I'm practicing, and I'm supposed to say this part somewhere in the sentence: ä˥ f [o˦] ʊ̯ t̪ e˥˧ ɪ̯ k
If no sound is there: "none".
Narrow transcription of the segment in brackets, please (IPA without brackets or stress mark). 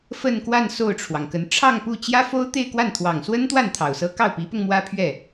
o˥